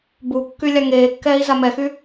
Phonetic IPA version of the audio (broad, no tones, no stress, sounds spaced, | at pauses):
b u kː y lʲ a ŋ eː kː ɛː i̯ z a m ɛ x y